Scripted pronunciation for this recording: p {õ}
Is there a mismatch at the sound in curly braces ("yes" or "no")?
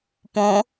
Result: no